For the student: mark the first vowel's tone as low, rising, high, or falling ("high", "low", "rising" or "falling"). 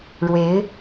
rising